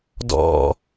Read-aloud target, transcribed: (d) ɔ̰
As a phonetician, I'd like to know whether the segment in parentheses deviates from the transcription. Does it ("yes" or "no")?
no